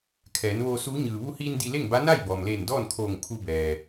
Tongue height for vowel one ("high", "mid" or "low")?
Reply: mid